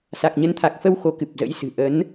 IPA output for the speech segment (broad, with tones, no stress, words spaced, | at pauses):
sa˨˩k̚ɲə˨˦nt̪ʰa˨˩k̚fə˧w xo˨˦kɨ˨˩p̚zə̰˧˥jsɨ̤˨˩ ʔə˨˦n